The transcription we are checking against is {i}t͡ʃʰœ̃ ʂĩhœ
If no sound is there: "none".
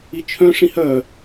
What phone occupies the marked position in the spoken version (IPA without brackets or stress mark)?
i